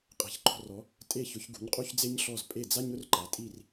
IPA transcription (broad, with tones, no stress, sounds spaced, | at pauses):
qʼ ɛ̤˩ ç ǃ ɔ̤˧ r ɔ˩˥ | tʼ e˥˩ ç ʊ˩˥ ç ɡ ṳ˩˥ ɲ qʼ u˥ ç d͡z e˥ ɲ ɬ ɔ˥˩ z pʼ e˥˩ d͡z a˥ ɲ ʊ˥ r ǃ a˩˥ tʼ i˥˩ r